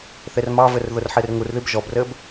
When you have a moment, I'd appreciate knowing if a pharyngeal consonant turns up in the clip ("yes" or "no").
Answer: yes